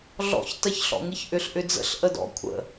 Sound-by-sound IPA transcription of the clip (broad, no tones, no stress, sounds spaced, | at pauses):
ɮ ɔ̰ ç t ɜ ç ɬ ɔ̰ ŋ ɨ ç ʔ ʏ ɬ ʔ ʏ d͡z ə̰ ɬ ʔ ə d ɔ̰ kʷʰ ə̰